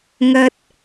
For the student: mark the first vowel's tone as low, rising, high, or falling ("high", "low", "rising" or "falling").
high